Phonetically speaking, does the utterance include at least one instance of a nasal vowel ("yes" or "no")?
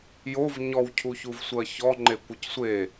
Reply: no